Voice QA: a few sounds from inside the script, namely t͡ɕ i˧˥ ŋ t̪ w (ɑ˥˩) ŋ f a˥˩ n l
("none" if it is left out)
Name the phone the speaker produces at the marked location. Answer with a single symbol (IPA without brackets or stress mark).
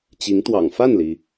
ɑ̰˨˩